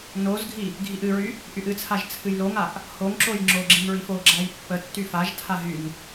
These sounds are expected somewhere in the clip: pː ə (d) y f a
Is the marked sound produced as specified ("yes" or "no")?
no